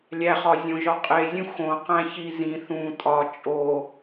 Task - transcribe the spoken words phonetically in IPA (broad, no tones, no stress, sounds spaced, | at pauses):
lʲ æ χ ɒ zʲ õ ʒ ɒ qʼ e zʲ ũ x õ q æ̃ ç i z ĩ θ ũ tʼ ɒ t͡ʃʼ o